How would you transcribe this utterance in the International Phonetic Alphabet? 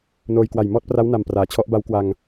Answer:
n oː˧ j k w a˨˩ j m ɔː˥˩ t̚ p r a˦˥ w n a˨˩ m p r aː˩˦ t͡ɕʰ ɔ˦˥ ʔ b a˦˥ w k w a˧ ŋ

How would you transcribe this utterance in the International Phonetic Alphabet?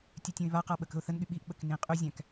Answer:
tʲ ʉ tʲ ũ ɪ̯ β a q a ɓ ə k ə̤ ʊ̯ θ ə n ɠ y ɓ i ʔ ɓ ə k n ĩ qʼ y zʲ æ̃ k

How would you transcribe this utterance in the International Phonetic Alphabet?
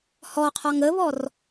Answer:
h ɔ qʰ ɒ ŋ ə β ɔ r

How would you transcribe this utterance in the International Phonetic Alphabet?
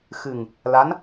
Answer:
x ɨ˨˩ ŋ | l a˧˥ n

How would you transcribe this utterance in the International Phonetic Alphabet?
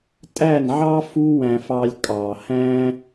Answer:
tʼ æ˦˨ n ʕ ɑ˦ f u˦ w æ̃˧ f ɑ˧ lʲ kʼ ɑ˨ h æ̃˦

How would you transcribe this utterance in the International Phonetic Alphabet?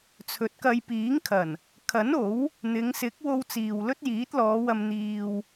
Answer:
t͡sʰ ɵ˨˥ t̚ k ɐ˧ j p iː˨˥ ŋ kʰ ɐ˨˩ n | kʰ ɐ˨˥ n o˨˥ w | n̪ ɪ˨˧ ŋ s ɪ˨˥ k̚ w o˧ w t͡s iː˨ w l ɵ˥ t̚ j iː˨˥ t̚ l ɔː˨˧ w ɐ˧ m n̪ iː˧ w

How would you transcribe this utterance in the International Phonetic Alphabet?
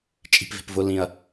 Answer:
t͡ʃʼ i̤ p v e̤ p v ʊ l ĩ ɐ̯

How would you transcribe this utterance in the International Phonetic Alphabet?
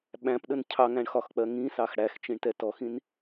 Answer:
ɓ æ̃ p ɗ ə n cʰ ɑ ŋ æ̃ ɳ x ɒ x k͡p ɜ ŋ ĩ s ɑ x ɽ æ x t͡ʃ ĩ ɳ t ɛ t ɔ x ĩ n

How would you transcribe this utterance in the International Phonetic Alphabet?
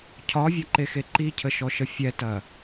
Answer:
cʰ ɒ vʲ ɐ ǃ e x e ǃ i cʰ ə ʃ ɔ ʃ ə fʲ ɛ t ɐ

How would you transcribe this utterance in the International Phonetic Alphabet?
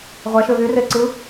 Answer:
ʁʷ æ ʃ ø v y r e ǀ ɯ

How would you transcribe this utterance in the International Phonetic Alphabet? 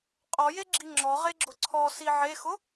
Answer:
qʼ ɔ j e ɡ͡ǁ i ŋ͡ǁ ɔ ʁ e ɡ͡ǁ ʊ ǀʰ ɔ s i ʕ e x ʊ

